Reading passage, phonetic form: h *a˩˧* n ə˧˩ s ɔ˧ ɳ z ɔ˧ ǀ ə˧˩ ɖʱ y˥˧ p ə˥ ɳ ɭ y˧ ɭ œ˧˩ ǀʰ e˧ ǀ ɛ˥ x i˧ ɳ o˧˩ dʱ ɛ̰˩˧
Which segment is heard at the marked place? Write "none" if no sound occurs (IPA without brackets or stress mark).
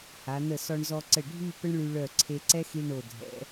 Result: a˩˧